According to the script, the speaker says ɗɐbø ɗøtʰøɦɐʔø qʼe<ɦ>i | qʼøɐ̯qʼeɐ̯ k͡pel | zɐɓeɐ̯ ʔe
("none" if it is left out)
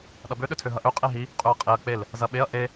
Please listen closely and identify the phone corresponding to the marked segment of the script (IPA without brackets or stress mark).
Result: ɦ